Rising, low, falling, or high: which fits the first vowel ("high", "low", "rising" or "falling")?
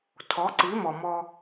rising